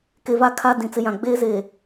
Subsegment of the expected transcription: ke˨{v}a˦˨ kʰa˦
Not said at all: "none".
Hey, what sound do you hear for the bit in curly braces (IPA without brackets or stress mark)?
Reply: v